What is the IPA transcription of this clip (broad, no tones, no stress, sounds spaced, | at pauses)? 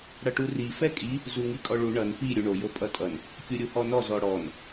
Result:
ɽ ʌ ʈ u r i f ɛ kʼ i | z u ŋ i kʼ ɔ ɭ u ɳ ʌ n p i ɾʲ u ɳ o j o pʼ ʌ tʼ ʌ n | kʲ u ɾʲ u h ɔ n ɔ z ɔ ɽ ɔ n